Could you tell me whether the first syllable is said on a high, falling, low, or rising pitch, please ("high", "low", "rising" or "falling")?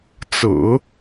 low